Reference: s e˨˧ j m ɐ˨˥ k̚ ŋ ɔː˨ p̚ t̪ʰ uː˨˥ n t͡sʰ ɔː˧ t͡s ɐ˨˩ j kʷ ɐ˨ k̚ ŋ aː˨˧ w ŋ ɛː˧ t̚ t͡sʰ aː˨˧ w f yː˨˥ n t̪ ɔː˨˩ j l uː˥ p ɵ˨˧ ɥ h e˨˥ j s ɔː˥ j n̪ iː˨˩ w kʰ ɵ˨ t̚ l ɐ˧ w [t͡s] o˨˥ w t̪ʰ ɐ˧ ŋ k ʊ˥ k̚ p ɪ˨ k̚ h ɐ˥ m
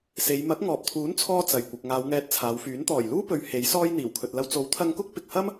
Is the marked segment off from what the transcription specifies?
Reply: no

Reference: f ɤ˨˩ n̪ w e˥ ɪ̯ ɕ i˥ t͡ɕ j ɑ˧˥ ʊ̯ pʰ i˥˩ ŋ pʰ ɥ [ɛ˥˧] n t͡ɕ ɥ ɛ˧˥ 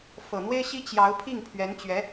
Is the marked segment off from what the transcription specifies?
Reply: yes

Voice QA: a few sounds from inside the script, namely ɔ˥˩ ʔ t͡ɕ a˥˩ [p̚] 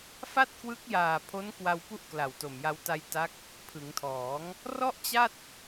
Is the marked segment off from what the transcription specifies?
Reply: yes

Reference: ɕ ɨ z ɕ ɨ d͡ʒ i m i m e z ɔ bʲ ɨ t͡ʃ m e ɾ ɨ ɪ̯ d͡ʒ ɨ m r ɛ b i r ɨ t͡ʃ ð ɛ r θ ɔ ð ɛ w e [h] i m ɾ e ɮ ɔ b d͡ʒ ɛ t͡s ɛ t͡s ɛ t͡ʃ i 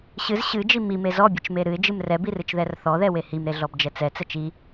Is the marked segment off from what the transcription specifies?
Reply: no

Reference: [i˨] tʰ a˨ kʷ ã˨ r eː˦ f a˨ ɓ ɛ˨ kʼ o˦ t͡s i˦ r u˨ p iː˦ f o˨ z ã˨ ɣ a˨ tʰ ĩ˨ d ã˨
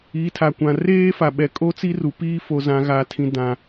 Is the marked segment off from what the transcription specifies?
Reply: yes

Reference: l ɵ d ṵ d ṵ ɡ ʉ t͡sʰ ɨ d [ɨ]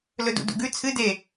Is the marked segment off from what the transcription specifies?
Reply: yes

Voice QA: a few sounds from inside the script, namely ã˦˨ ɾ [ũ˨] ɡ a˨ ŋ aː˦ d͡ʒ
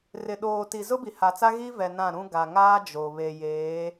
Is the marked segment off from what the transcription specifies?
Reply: yes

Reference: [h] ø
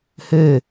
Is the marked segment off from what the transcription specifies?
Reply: no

